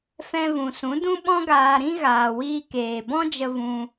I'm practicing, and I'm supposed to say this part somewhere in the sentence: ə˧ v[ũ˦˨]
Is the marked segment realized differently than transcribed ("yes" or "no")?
yes